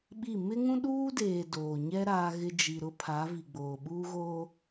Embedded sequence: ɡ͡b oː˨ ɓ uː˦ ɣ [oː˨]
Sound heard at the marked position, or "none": oː˦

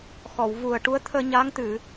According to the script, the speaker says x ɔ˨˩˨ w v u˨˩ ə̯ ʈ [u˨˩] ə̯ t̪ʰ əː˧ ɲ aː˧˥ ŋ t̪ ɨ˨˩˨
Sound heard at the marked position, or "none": u˧˥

